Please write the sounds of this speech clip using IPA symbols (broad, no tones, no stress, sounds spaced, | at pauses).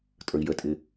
tʼ ə˞ i̯ j ə tʼ ɪ